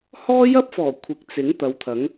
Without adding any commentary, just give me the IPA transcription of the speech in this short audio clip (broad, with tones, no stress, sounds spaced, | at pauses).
h ɔː˥ j ɐ˥ p̚ f ɔː˨˩ kʷʰ ɪ˨ k̚ t͡s ɪ˨˥ ŋ t̪ ɐ˨˧ w t̪ʰ ɐ˨˥ ŋ